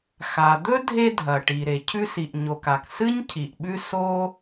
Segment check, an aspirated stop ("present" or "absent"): present